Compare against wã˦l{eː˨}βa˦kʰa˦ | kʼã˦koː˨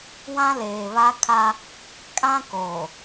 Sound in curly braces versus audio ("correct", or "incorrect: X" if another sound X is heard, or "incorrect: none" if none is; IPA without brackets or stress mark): correct